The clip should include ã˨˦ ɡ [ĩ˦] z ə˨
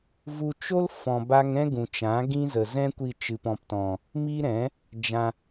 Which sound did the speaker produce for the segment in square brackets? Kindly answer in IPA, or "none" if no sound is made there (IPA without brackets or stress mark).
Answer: ĩ˦